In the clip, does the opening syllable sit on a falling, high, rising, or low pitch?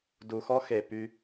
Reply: low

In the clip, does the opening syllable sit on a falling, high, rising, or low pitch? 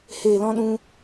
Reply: low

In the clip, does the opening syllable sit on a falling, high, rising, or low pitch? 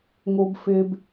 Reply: high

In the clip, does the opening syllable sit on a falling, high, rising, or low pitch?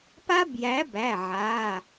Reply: high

